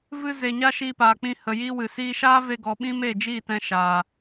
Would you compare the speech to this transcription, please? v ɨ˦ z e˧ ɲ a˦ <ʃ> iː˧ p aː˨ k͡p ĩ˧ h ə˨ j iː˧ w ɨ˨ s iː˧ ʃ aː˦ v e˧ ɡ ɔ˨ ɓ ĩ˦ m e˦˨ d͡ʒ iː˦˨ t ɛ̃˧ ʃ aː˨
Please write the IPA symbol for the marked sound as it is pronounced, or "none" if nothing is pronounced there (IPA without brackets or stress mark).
ʃ